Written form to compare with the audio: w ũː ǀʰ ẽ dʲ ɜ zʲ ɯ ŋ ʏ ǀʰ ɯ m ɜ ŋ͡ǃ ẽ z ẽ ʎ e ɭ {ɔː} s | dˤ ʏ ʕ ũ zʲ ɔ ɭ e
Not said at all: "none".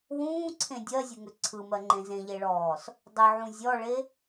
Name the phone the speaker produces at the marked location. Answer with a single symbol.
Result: ɔː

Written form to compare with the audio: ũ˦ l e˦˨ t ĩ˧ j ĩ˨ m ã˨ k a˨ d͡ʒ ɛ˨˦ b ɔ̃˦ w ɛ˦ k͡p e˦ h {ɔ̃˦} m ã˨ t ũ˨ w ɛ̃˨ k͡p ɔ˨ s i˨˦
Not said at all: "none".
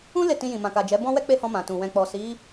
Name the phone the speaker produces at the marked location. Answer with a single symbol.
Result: ɔ̃˧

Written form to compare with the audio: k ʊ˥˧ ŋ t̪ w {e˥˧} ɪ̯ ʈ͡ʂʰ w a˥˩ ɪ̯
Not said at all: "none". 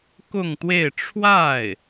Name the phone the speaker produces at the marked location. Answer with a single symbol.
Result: e˥˧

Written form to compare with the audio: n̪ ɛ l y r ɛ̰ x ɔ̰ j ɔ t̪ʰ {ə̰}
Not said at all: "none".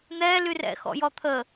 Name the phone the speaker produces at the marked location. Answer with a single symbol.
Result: ə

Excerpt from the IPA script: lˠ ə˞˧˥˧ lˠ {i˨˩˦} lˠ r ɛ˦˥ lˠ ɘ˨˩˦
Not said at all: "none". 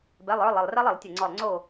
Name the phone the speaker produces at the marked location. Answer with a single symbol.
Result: i˧˩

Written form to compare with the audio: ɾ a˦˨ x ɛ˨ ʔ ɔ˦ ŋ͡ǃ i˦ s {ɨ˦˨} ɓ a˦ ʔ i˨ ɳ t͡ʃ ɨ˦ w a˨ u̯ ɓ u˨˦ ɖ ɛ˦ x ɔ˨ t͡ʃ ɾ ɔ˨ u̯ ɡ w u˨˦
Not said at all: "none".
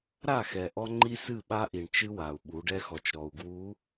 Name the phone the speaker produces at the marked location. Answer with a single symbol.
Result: ɨ˦˨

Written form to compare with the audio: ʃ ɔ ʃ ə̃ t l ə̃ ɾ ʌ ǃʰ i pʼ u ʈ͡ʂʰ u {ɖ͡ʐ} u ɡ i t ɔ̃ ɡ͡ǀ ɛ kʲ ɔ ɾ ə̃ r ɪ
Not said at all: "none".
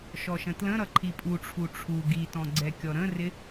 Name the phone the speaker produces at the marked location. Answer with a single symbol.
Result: ʈ͡ʂʰ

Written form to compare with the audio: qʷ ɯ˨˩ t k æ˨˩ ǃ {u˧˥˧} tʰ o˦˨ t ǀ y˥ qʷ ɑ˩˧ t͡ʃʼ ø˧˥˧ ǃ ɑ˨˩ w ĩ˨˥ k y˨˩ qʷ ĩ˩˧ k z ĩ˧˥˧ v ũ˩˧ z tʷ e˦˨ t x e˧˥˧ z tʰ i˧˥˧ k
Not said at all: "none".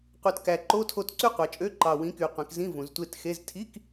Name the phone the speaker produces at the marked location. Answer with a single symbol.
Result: o˧˥˧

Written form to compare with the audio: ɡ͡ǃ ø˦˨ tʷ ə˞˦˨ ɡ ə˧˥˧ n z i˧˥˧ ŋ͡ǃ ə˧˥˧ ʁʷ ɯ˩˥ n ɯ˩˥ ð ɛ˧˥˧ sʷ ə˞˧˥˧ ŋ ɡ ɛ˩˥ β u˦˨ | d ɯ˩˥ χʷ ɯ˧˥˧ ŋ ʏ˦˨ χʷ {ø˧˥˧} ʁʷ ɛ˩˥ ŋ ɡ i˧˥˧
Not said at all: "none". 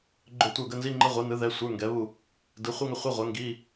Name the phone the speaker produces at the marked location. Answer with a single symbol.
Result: ɛ˧˥˧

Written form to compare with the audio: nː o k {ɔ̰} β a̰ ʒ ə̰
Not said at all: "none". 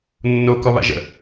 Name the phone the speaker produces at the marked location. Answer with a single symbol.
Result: ɔ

